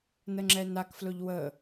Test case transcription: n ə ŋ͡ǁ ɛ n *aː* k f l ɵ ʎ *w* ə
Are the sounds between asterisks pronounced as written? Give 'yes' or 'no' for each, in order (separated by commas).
no, yes